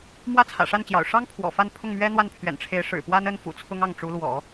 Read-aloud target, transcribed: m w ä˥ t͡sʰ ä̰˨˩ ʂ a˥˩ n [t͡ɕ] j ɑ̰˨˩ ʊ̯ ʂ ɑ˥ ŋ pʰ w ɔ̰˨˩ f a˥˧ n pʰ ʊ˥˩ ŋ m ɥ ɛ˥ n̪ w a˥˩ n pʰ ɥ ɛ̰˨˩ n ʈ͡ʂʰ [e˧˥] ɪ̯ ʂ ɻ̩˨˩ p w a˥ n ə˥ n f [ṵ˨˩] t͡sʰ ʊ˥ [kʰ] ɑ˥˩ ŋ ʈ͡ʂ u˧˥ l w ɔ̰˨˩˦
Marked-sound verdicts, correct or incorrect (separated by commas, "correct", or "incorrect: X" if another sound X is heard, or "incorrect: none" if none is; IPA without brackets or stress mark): correct, correct, correct, incorrect: ŋ